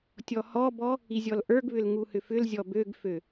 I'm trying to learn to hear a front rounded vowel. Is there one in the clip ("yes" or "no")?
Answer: yes